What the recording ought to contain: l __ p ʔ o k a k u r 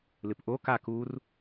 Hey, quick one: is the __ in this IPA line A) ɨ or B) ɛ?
A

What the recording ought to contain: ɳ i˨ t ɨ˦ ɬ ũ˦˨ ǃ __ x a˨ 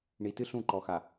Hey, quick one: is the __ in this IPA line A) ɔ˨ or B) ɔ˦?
A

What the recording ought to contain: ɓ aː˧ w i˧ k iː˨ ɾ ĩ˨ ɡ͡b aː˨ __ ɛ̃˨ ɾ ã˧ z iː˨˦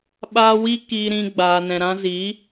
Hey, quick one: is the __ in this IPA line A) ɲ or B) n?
B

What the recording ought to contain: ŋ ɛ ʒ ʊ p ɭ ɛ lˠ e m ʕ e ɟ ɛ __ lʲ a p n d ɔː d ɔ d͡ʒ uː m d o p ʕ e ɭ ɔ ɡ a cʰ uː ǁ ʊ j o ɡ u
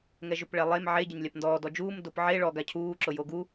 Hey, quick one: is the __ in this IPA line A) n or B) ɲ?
B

